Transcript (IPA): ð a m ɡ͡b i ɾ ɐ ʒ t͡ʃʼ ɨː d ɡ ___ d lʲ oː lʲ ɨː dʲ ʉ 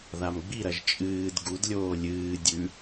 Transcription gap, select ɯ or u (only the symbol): u